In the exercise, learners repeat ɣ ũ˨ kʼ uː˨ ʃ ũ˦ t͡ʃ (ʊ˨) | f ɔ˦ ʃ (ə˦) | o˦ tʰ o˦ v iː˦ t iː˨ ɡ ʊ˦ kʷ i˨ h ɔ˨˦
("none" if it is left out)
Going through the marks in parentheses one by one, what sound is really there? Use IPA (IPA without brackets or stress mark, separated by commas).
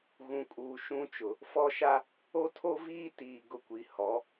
ʊ˨, a˦